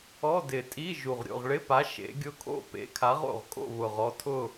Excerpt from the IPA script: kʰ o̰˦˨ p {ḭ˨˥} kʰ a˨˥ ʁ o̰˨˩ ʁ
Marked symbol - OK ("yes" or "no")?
no